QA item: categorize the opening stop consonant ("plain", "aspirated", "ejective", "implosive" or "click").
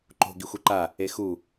click